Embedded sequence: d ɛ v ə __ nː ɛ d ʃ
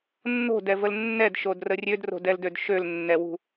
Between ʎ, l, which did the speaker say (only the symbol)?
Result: l